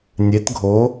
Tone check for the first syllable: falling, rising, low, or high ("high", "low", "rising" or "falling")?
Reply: rising